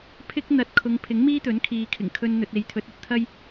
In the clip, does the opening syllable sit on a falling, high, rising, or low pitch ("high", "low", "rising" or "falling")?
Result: high